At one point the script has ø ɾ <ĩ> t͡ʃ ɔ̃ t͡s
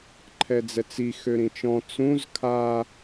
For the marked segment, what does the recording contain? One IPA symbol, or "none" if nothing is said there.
ĩ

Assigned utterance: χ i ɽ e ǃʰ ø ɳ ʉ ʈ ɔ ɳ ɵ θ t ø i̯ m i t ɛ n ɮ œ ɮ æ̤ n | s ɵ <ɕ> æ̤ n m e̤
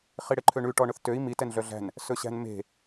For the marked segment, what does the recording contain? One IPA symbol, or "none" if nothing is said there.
ɕ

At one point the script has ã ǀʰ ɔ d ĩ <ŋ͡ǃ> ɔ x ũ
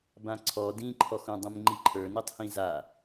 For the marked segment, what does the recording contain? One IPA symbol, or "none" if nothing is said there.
ǃʰ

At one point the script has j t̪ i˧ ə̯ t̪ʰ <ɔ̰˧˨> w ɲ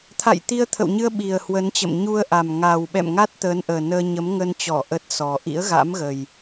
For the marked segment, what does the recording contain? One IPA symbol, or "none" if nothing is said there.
ə̰˧˨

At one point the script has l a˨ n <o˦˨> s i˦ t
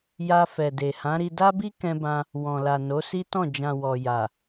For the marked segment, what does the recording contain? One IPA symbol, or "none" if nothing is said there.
o˨˦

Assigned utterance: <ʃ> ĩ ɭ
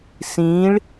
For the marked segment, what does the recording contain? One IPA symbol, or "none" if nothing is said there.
s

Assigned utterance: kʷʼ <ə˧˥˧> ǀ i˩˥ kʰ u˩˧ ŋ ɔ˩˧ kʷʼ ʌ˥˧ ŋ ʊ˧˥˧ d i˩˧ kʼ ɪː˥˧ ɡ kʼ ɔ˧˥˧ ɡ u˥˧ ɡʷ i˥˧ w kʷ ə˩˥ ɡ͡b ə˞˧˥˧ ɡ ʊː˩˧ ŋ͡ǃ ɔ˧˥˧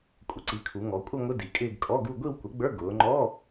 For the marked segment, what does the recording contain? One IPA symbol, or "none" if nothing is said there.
ə˩˥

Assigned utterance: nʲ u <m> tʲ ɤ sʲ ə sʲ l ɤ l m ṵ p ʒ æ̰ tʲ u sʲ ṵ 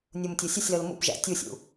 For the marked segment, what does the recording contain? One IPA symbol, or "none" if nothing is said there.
m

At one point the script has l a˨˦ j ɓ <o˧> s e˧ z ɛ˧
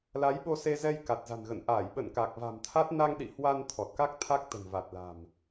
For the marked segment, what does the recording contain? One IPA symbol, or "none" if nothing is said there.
o˧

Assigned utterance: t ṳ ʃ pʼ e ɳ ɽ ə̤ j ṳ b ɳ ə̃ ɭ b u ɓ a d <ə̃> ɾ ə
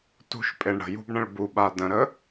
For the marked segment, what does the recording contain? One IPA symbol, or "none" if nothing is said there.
ə̃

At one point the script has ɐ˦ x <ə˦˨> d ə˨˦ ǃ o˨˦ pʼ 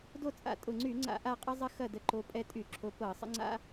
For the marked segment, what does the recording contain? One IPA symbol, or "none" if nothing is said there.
ɐ˦˨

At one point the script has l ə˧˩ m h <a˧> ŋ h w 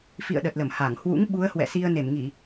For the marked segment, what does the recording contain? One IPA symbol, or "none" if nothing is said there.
a˧˩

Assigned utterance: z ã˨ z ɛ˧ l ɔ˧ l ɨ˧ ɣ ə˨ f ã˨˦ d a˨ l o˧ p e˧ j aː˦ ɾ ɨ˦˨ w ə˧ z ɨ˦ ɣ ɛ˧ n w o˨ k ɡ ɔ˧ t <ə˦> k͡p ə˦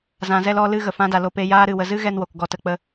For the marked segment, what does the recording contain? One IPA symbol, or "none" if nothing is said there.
ə˦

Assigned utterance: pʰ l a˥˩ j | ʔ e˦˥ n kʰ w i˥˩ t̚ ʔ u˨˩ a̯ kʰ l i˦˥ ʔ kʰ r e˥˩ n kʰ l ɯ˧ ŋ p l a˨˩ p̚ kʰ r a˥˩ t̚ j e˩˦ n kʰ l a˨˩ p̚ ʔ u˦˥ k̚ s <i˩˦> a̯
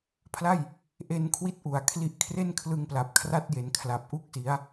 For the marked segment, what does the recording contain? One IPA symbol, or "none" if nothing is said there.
i˩˦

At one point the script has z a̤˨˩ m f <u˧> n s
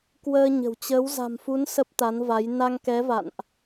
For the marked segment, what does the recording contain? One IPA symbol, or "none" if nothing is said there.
u˨˦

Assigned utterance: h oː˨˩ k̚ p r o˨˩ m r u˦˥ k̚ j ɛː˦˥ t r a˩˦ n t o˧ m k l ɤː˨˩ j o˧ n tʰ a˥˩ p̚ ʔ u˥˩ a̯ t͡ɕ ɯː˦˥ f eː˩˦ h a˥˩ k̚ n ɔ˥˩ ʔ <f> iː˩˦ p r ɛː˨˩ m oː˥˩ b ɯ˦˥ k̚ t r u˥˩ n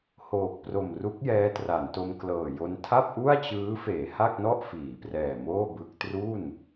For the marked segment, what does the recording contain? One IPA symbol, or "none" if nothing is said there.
f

